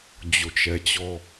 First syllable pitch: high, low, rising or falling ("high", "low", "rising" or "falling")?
low